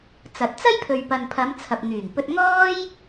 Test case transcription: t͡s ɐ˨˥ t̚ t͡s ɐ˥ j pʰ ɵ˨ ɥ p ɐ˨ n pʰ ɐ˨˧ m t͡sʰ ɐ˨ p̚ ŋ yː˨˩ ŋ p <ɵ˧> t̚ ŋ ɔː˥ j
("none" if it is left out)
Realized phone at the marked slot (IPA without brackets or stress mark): ɵ˧